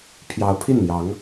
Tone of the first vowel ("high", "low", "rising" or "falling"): rising